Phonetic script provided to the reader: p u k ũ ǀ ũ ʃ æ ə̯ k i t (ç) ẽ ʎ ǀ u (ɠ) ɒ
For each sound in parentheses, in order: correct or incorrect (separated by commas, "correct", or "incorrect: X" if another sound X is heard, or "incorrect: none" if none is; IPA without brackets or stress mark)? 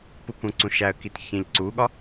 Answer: correct, correct